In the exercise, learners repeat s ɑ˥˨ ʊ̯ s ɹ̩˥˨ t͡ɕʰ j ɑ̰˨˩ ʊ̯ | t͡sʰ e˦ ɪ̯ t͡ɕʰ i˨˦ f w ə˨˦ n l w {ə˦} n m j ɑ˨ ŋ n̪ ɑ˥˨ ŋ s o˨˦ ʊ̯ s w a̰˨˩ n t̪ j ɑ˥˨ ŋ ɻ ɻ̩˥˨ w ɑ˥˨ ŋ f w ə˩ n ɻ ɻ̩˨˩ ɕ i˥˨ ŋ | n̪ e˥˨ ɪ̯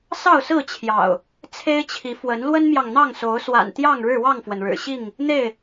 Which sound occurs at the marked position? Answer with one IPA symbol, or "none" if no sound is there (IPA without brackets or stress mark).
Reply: ə˦